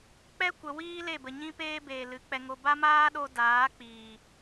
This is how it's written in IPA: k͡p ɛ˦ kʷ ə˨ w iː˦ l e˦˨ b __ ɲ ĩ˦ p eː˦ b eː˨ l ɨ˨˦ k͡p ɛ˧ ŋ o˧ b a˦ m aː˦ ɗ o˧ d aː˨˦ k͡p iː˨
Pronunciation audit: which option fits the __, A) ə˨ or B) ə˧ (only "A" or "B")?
A